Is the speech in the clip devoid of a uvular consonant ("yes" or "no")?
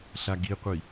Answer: no